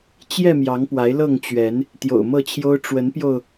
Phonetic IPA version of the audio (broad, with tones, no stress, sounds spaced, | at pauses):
t͡ɕ j ɛ˥˨ m j ɑ˨˦ ŋ p w a˨˦ ɪ̯ l ɤ˥˨ ŋ t͡ɕ ɥ ɛ˨˦ n | t̪ j o̰˨˩ ʊ̯ m ɤ˥˨ t͡ɕʰ j o˦ ʊ̯ ʈ͡ʂ w ə˨˦ n p j o˧ ʊ̯